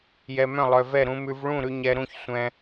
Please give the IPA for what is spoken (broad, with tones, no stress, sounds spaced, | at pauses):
j ɛ˧ m œ̃˥˨ lˠ œ˧ v ɛ˥˨ ɾ ũ˧ m ʉ˧ v ɭ ũ˥˨ ɾ ʉ˧ ɲ ɛ˧ ɾ ũ˥˨ ç sʷ ɛ̃˧